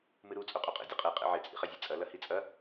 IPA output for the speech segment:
mɨɾu t͡sʼoqʼoqʼḛ dʲɨqʼe qʼḛʕe t͡sʼḭχɐzʲɨt͡sʼɐ lɐhit͡sʼɐ

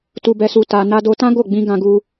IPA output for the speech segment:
tu˧bɛ˧su˧ ta˧ na˧do˧tã˦ ɡo˦˨ɡ͡bĩ˧ ɡã˧ɡu˧

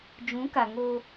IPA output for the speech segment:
d͡ʒũ˨˦ka˨ŋo˦

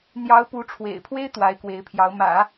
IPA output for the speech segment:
n̪jɑ˧˥ʊ̯ pu˧˥ʈ͡ʂʰwḛ˨˩ɪ̯ pʰwe˥ɪ̯ t̪wa˧˥ɪ̯ kwe˧˥ɪ̯pʰjɑ˧˥ʊ̯ mä̰˨˩˦

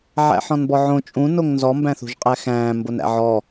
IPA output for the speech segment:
ʕæ̰ħɔ̃nbɔʕõ t͡ʃʼũ noŋnzɔ mbæ̃θṳʒqʼæxæ̃ː mbonæ̰ʕɔ

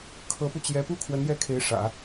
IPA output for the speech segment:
kʰɤ˧˥pu˧t͡ɕjɛ˧˥ pu˥kʰwə˧˥njɛ˥˩kʰe˧˥ɪ̯ ʂä̰˨˩˦

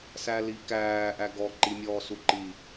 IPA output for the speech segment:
sælikæːʔæ ɡɔ ǃimʲɔːsuǃi

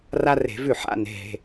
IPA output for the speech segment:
ra˥re̤˧˩˧vʉ˥˩ ħa̰˧˥˧ ne̤˩˧˩ɦe̤˩˧˩

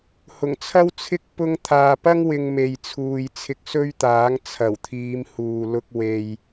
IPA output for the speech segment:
hʊ˨˩ŋt͡sʰɐ˥wt͡sʰɪ˥k̚ pʊ˧ŋt̪ʰaː˨pɐ˥ŋ wɪ˧ŋ me˨jt͡sʰuː˨j t͡sʰɪ˧k̚sɵ˥ɥt̪aː˨˥ŋ t͡sʰɐ˨˩wt̪ʰiː˨˧m huː˨lʊ˧k̚ we˨j

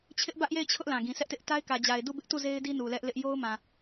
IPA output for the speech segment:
t͡ɕʰɪ˦ʔbä˦ʔje˦˨ɪ̯ t͡ɕʰʊ˦ʔ lã˨ɡĩ˨sɛ˦ʔtɪ˦ʔ ta˦ɪ̯kä˨d͡ʑa˨ɪ̯ du˦˨bɪ˦ʔtu˦˨ ze˦ɪ̯di˦ nu˨lɛ˦ʔlɪ˦ʔ jo˦ʊ̯mã˨

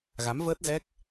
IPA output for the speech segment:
ɣa˨˦mvəː˦˥t̚zɛ˦˥k̚

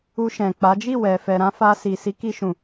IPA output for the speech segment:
u˧ʃɛ̃˨k͡pa˨˦ d͡ʒi˦˨wɛ˨fɛ˨ɾã˧ fa˧ si˨si˨˦ ki˧ʃũ˨

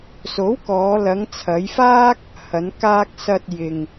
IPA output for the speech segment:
so˨˥wkɔː˨˧ lɐ˨˧ŋt͡sʰɐ˨˧jfaː˥k̚ | hɐ˨˧nkaː˧k̚ sɐ˨t̚ jɪ˨ŋ

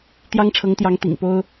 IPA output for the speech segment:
t̪jɑ˥ŋʈ͡ʂʰɤ˧˥ŋt̪jɑ˧˥ŋ t̪ḭ˨˩ŋpo˥ʊ̯

